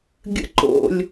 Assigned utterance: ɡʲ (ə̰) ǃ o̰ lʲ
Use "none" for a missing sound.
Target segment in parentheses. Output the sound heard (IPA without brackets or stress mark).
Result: ə̰